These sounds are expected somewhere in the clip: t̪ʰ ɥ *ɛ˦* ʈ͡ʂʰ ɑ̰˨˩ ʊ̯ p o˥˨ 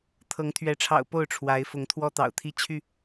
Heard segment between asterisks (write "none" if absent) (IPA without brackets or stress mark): ɛ˨˦